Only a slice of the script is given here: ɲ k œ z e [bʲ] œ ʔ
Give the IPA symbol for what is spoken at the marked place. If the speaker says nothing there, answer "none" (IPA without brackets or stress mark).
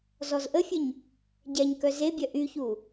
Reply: bʲ